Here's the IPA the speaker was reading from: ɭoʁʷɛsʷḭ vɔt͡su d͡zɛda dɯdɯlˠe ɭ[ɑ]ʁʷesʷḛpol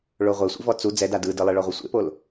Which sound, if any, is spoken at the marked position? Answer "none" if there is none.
ɔ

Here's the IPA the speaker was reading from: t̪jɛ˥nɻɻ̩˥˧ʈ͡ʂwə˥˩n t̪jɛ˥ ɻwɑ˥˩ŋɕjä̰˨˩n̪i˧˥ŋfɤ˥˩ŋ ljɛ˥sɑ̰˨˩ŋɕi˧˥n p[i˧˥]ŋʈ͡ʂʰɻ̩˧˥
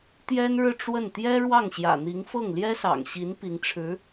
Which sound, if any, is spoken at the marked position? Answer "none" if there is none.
i˧˥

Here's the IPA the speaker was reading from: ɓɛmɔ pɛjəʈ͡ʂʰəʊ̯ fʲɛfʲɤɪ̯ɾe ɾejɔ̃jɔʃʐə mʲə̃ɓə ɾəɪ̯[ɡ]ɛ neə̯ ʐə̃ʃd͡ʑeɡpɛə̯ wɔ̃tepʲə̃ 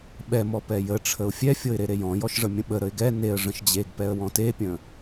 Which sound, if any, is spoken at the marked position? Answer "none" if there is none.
ɡ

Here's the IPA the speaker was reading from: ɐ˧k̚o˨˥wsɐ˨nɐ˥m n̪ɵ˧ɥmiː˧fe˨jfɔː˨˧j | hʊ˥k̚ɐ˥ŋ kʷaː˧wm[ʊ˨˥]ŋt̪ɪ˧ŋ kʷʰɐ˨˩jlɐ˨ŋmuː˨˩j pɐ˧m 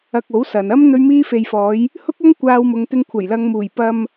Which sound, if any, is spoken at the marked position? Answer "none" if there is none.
ʊ˨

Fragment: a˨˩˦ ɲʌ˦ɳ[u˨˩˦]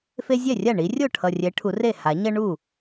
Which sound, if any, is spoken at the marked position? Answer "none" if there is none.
u˥˩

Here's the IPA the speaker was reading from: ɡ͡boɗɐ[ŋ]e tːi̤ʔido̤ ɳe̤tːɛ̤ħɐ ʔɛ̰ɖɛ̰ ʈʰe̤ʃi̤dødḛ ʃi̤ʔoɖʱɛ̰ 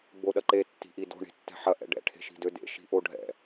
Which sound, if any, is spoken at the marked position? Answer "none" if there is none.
ǃ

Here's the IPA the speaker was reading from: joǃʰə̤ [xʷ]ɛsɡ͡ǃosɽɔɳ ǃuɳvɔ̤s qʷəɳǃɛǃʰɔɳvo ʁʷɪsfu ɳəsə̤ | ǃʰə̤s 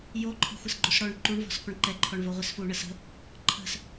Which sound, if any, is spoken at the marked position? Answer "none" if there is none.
xʷ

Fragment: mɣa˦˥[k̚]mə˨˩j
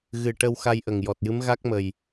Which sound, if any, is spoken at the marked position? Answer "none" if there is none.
k̚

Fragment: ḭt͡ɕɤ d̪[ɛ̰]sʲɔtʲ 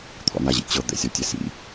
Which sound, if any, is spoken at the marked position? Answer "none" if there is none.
ɛ̰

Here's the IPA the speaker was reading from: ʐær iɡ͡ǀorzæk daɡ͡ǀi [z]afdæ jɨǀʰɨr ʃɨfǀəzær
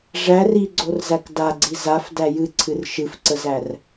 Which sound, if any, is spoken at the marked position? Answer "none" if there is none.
z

